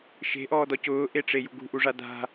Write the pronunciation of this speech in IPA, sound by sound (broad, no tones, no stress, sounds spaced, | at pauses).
ʃ e̤ ʔ ɔː d ɔ c ʊː ʔ e ʈ͡ʂ e j ṳ ɡ ṳ ʔ u ʐ a d a̤